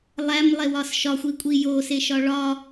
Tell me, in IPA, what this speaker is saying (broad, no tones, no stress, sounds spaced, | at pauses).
lˠ æ m lˠ e w ɒ s ʃ ɒ xʷ i kʷʼ i j o s e ʃ ɒ ɭ ɒ